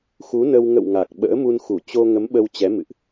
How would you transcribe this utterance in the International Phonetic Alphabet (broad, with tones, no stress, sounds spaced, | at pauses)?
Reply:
x u˨˦ n ə˧ w ŋ ə̰˧˨ w ŋ a˨˩ k̚ ɓ ə̰ː˧˥ m u˧ n x u˧˩ t͡ɕ o˧ ŋ ə˨˦ m ɓ ə˧ w t͡ɕ ɛ˨˦ m ɨ̰˧˨ ʔ